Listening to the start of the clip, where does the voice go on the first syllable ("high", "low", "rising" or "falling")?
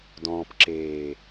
low